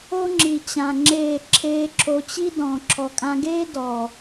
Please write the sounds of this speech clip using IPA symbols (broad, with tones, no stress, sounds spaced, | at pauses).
o˦ ŋ͡ǁ i˨ t͡ɕ ã˨ ŋ͡ǁ eː˦˨ ǁʰ eː˦ ǁʰ o˧ t͡ɕ i˦ d ɔ̃ː˨ ǁʰ ɔ˨ kʼ ã˧ ɡ eː˦ d ɔ˨